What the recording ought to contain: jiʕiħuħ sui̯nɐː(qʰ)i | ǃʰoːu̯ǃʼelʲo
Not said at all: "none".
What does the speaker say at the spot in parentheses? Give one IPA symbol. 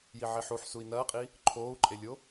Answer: qʼ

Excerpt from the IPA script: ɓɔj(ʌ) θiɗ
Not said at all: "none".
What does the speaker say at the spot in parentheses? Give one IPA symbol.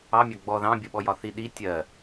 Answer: ɒ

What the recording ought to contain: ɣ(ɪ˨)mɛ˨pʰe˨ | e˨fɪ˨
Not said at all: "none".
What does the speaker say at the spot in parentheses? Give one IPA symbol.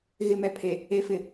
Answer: ɪ˨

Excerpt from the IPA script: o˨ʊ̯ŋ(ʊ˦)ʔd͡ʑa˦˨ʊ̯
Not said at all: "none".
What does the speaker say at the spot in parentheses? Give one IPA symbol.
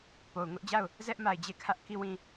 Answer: ʊ˦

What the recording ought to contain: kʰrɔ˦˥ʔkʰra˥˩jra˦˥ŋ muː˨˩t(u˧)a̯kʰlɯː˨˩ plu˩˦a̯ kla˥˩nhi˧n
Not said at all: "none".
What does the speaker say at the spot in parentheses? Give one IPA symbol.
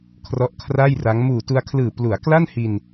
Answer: u˧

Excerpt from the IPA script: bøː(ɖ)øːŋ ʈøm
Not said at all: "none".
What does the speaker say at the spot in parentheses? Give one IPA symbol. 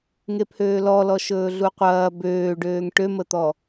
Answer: ɖ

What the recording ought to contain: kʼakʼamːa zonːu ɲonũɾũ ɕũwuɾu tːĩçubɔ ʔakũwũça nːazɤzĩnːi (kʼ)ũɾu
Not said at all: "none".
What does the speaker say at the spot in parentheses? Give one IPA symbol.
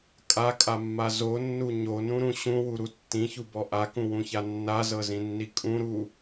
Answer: kʼ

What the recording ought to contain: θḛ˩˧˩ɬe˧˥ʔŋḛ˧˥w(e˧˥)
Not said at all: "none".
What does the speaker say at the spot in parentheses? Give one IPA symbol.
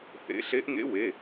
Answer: e˩˧˩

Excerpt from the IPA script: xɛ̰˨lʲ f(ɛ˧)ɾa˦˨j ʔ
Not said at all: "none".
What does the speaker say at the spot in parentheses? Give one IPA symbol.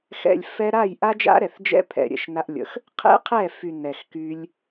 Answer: ɛ˧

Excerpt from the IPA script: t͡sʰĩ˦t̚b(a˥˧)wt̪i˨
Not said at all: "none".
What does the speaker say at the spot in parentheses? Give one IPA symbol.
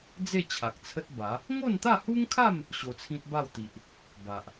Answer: a˥˧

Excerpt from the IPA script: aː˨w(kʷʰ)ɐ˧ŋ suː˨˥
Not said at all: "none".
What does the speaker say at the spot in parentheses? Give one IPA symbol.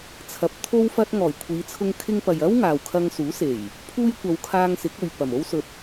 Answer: kʰ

